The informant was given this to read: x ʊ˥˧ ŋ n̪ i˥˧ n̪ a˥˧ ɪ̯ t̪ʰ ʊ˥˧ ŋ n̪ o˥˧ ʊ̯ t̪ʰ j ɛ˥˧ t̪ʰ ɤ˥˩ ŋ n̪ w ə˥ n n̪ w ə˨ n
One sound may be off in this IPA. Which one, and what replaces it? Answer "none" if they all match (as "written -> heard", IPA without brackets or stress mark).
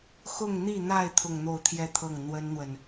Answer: none